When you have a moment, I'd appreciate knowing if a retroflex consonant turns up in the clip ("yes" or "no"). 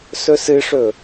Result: yes